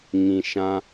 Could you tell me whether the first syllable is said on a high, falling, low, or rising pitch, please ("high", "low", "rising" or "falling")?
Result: low